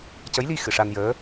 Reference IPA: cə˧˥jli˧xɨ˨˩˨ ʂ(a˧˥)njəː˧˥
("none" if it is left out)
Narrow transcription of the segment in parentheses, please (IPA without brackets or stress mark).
a˧